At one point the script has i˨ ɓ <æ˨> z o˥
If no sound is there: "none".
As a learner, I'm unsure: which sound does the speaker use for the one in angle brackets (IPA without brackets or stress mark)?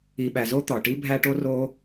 æ˨